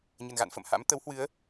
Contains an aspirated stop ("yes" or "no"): no